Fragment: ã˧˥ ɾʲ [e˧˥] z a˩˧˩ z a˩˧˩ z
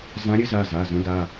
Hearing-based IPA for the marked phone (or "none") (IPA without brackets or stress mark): ɘ˧˥